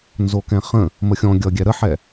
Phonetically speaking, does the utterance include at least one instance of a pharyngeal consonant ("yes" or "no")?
yes